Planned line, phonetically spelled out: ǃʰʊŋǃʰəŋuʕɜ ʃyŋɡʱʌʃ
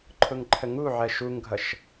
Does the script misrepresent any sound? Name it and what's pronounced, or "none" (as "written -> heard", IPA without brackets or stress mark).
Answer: y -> u